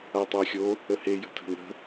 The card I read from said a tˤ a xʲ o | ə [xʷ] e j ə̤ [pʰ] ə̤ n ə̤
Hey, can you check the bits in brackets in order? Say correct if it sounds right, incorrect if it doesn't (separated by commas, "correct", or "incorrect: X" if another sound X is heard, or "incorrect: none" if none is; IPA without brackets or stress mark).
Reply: incorrect: h, incorrect: tʰ